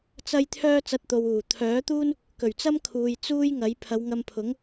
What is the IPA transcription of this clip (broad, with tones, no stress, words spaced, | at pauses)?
t͡sɐ˥j t̪ʰœː˥t͡sɐ˧t̚t̪o˨wuː˨˩ t̪ʰœː˨˥t̪uː˥n | kɵ˨˩ɥt͡sɐ˥mkʰuː˨j t͡suː˥jŋɐ˨˥j pʰɐ˨˧wŋɐ˧mpʰʊ˨˥ŋ